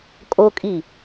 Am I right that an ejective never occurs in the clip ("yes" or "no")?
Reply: no